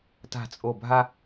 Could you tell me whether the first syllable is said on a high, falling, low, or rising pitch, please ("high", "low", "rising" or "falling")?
low